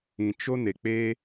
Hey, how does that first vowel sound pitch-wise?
low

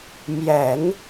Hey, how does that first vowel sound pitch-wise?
low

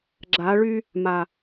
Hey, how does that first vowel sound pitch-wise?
rising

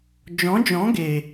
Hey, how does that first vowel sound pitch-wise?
rising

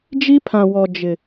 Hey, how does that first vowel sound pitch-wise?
high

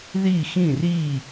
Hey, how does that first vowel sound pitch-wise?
falling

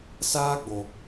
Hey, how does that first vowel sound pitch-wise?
high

